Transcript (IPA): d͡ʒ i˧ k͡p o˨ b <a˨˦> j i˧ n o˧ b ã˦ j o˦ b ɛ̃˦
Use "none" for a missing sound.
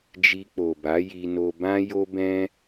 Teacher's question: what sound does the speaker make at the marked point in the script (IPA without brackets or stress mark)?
a˨˦